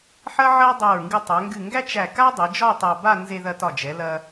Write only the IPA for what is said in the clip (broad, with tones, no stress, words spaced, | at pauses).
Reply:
ħɐ˥ʕɐ˥dˤɐ˧˩ɹ ŋɡɨ˧tˤæ˩˧ŋɡɨ˧˩ŋɡæ˥t͡ʃ æ˧˩ka˥dˤɨ˩˧d͡ʒɒ˥˧ tˤa˧ba˥˧ nze˧ ðɐ˧tɒ˧˩d͡ʒɛ˩˧lɐ˧